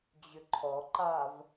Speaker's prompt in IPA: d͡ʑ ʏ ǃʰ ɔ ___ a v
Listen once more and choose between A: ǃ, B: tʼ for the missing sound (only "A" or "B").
A